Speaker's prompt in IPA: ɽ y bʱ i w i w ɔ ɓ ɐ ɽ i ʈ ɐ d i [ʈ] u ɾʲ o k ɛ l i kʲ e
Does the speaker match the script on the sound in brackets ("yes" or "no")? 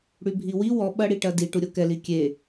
yes